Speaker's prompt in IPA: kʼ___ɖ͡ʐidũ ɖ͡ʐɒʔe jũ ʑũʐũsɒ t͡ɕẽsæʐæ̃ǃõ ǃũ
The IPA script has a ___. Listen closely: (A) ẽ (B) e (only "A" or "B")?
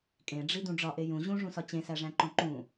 A